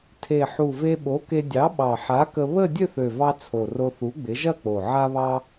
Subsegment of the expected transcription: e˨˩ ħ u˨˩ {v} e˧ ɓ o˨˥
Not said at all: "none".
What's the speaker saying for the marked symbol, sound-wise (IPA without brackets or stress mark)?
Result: v